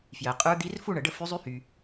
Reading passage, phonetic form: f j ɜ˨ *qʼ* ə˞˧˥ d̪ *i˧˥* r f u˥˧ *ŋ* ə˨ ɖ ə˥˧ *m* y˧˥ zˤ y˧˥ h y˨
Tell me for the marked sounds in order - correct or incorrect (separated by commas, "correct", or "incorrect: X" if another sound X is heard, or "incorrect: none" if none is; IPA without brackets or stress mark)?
correct, correct, incorrect: ɳ, incorrect: f